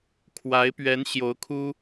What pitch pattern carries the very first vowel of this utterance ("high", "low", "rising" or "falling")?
rising